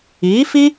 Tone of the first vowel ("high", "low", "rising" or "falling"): rising